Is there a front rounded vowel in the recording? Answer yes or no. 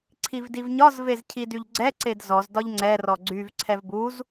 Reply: yes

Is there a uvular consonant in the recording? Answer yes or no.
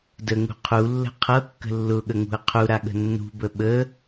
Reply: yes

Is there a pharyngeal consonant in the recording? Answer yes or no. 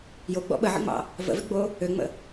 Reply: yes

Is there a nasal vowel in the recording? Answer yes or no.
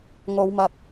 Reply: no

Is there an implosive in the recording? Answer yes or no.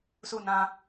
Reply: no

